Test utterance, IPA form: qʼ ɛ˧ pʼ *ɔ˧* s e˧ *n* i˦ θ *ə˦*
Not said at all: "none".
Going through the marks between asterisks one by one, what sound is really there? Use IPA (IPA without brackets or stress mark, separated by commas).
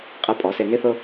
ɔ˨˦, n, ʊ˦